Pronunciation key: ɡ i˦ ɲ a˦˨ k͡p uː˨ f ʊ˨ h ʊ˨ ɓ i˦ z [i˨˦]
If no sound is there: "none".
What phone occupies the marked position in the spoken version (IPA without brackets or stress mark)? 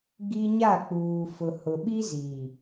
i˨